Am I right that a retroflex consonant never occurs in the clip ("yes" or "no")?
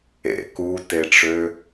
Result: no